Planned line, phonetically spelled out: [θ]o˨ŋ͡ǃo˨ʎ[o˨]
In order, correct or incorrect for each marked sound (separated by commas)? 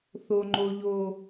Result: correct, correct